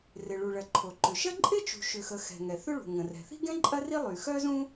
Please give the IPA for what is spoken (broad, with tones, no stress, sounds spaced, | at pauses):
r ɪ˩ ɭ u˩ ɭ ɐ˩ ǃʰ o˩ ǃ ʏ˩ ʃ ɐ˥ ǃʼ ɪ˥ t͡ʃ ṳ˩ ʃ ʏ˩ x ə˩ x ɛ̤˩ ŋ ɛ˩ θ ʏ˥ ɭ ṳ˩ ŋ ə̃˩ r ɛ̤˩ θ i̤˥ ɡ ɛ̃˥ ǃʼ ɐ˥ r i˥ lˠ y˩ x œ˥ z ũ˥